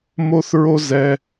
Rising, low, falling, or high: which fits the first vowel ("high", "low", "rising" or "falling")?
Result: high